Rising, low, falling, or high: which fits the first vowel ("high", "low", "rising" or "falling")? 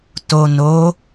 low